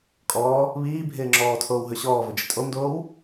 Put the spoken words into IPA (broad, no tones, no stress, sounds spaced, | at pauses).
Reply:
kʼ ɔː | β iː bʱ ɪː ŋ͡ǁ ɔː tʰ oː w ɦ ɵ ɕ ɔː v ɵ d͡ʒ ɪ tʼ o m d oː w